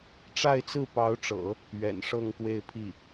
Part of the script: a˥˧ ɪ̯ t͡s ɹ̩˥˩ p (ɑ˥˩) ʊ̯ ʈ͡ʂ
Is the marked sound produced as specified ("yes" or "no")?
no